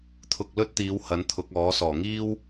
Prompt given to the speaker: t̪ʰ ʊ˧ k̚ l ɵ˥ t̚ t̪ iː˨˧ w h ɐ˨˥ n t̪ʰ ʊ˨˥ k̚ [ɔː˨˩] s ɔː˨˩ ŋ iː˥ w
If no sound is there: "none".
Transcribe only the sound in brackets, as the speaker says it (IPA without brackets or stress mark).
ɔː˨˥